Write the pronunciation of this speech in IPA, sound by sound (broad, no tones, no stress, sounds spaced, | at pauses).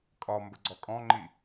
kʼ ɒ m b ə ɡ͡ǀ ɔ kʼ ɔ̃ ŋ͡ǃ i